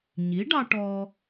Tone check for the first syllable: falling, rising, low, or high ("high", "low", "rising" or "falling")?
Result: rising